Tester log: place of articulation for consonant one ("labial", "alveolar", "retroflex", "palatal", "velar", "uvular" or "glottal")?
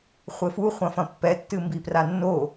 uvular